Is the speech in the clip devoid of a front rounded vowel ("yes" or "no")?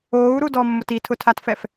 yes